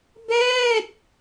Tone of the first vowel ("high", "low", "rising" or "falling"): falling